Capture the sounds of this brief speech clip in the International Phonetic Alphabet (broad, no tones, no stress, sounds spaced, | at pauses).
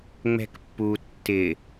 ŋ͡m ɛ̤ k pː u tː ɪ